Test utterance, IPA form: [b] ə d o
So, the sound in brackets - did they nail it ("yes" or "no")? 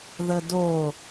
no